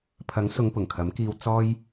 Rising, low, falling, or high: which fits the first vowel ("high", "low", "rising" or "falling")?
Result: rising